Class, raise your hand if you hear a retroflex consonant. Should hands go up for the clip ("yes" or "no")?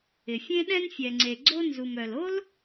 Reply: no